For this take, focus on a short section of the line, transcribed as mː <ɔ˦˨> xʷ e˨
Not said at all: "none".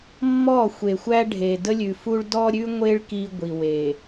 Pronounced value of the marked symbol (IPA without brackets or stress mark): ɔ˦˨